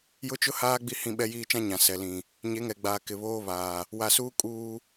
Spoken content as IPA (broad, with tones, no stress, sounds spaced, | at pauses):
j ʊ˦ t͡ʃ ʊ˦ h aː˦ ɡ͡b i˦ h ĩ˦ ɓ ɛ˦ j iː˦ t͡ʃ ã˦ ɲ ã˨ s ɛ˨ l ĩ˨ | ɲ e˨˦ ŋ ɛ˨ ɡ͡b aː˨ k ɪ˨ β oː˦ β aː˨ | w a˨ s uː˦ kʼ uː˦